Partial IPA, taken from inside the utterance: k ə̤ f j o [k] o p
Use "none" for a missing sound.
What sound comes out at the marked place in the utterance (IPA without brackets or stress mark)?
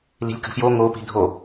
ŋ